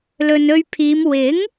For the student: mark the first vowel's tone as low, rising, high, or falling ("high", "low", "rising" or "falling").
low